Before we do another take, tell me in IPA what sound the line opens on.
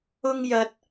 ʊ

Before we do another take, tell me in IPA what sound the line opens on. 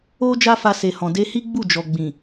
o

